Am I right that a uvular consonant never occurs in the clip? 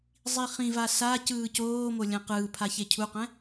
no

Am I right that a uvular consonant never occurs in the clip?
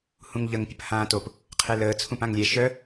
no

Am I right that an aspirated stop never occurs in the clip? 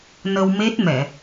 yes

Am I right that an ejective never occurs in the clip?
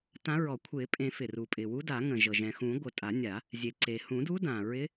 no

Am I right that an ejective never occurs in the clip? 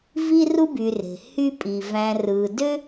no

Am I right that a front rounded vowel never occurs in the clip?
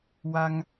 yes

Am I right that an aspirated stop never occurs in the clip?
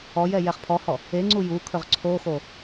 no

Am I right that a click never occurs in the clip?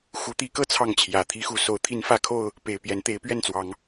yes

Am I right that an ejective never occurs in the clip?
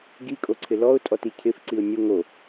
no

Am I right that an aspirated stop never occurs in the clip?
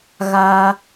yes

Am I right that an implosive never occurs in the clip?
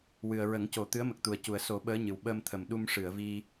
no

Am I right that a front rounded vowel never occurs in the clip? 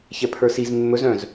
no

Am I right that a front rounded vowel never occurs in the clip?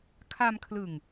yes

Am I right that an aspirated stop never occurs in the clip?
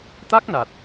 yes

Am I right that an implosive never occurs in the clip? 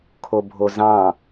yes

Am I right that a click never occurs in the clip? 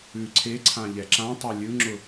no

